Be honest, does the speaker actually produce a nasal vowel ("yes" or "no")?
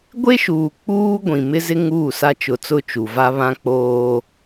yes